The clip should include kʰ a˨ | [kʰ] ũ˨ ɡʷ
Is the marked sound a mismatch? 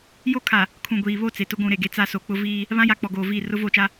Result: no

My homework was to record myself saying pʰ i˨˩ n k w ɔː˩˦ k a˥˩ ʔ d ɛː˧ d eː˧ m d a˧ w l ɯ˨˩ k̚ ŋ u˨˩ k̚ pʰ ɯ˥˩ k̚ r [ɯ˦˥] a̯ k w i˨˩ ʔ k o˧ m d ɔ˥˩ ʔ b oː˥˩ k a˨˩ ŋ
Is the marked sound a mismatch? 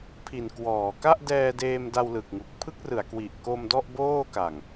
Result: yes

